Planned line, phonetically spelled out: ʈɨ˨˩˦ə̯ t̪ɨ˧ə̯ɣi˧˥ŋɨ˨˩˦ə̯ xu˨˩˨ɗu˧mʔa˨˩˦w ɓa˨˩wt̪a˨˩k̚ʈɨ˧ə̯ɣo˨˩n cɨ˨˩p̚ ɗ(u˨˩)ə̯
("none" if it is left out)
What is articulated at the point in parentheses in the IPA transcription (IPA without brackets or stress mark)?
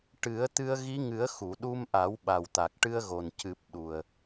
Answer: u˨˩